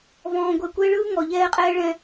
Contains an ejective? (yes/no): yes